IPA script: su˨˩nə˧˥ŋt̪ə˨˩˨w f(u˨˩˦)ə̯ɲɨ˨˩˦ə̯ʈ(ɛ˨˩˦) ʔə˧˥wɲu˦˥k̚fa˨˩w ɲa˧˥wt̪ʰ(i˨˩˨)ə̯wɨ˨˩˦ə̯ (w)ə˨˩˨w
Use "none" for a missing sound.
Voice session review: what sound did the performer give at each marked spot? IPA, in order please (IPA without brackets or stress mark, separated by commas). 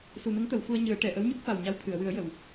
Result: u˧, ɛ˨˩˨, ɨ˨˩˨, j